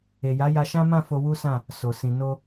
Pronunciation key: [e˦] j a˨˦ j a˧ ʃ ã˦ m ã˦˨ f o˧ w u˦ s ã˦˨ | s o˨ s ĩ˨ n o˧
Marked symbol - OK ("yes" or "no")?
no